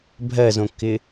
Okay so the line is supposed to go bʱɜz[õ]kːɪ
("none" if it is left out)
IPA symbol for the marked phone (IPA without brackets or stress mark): õ